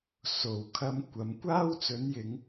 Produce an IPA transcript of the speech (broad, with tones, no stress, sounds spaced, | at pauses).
s o˨˩ w kʰ ɐ˧ m kʷ ɐ˨˥ m kʷ aː˥ w t͡s ɵ˨˥ n j ɪ˨˧ ŋ